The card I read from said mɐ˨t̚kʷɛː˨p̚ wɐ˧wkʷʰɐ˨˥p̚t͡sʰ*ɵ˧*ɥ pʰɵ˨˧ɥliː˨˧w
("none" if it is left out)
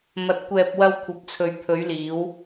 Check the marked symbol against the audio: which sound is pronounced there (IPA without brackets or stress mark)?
ɵ˨